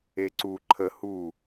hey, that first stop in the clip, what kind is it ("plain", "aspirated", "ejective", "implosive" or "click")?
click